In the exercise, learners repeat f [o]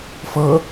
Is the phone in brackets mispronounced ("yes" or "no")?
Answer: yes